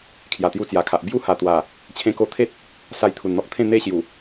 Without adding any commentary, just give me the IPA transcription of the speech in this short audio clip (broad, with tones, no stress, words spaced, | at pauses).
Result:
kʰja˨˩t̪ju˧t͡sja˨˩kʰa˨ʔ bju˦ha˨˩t̪wa˨˩ | t͡ɕʰẽ˧ ko˧t̪ʰe˦t̚ | sa˧jt̪ʰu˨˩nn̪ɔ˦k̚t̪ʰẽ˥˧ n̪e˦ɕju˨˩